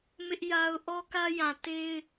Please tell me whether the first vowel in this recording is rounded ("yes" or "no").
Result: no